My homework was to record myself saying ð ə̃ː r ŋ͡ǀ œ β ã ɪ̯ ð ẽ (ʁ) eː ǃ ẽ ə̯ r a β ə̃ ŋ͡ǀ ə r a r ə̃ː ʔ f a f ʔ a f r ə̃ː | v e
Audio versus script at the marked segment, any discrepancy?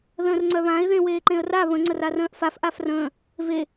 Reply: yes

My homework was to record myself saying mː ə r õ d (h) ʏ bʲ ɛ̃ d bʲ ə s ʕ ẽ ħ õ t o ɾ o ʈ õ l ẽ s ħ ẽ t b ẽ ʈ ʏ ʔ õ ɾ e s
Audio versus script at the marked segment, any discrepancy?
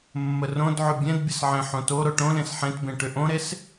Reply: yes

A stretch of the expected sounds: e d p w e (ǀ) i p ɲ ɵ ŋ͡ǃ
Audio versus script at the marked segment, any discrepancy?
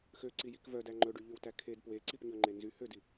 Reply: no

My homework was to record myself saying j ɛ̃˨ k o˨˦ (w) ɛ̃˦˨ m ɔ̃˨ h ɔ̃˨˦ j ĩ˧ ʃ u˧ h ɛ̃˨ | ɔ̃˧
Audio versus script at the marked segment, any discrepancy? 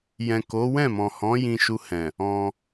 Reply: no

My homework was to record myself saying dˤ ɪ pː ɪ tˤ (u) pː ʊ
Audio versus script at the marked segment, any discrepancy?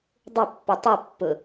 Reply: no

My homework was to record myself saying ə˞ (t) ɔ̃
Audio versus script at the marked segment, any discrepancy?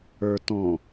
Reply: no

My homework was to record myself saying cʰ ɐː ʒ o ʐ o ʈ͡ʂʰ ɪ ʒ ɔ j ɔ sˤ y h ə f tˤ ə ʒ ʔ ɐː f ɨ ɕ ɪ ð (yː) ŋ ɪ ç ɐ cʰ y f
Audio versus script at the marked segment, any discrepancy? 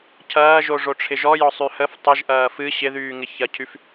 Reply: no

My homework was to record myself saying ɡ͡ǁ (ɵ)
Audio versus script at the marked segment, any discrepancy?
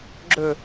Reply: no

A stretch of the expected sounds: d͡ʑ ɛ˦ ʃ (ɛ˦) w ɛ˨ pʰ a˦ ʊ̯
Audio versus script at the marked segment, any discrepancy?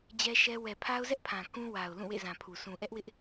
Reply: no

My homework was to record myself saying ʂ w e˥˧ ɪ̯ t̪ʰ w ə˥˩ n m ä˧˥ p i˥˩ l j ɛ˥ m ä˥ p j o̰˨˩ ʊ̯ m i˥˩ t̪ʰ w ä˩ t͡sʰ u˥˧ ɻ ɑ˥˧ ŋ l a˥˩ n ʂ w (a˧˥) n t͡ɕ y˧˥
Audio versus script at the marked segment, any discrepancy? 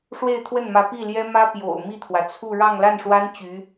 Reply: yes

